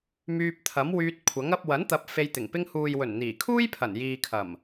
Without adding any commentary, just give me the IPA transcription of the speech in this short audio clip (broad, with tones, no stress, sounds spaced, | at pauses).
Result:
m yː˧ p̚ t̪ʰ ɐ˨˥ m w yː˧ t̚ kʷʰ ɐ˨˥ ŋ ɐ˧ p̚ w ɐ˨˥ n t̪ ɐ˨˥ p̚ f e˧ j t̪ ɪ˨˩ ŋ p ɪ˧ ŋ h uː˨ j w ɵ˨˩ n n̪ iː˨˩ kʰ uː˥ j pʰ ɐ˨˩ n j iː˨ kʰ ɐ˨˩ m